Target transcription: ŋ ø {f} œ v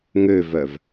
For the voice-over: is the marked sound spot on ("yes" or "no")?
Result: no